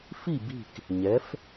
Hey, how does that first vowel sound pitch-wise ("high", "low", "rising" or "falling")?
falling